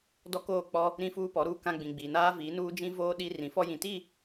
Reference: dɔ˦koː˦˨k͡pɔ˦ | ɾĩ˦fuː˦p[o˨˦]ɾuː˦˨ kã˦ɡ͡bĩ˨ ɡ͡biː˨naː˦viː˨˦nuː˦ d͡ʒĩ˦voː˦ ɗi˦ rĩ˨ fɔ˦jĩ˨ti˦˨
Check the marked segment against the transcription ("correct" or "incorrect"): incorrect